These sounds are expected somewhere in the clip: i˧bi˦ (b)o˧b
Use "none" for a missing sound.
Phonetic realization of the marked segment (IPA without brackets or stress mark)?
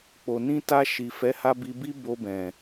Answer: b